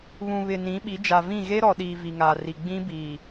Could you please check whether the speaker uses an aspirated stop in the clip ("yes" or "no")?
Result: no